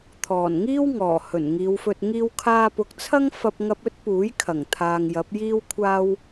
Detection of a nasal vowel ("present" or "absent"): absent